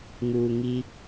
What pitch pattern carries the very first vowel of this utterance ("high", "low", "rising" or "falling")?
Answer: low